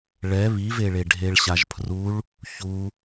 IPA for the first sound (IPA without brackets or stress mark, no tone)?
ɭ